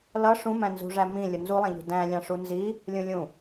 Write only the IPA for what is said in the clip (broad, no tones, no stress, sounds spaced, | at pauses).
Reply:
l ʌ ʂ ũ m æ̃ n z ṳ ʐ æ m ĩ lʲ ʊ n z u lˠ æ̃ ʎ ṳ d æ̃ lʲ ɑ̃ ʂ u n z i | lʲ ũ lʲ ũ